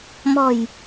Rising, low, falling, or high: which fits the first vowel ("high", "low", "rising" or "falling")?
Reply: low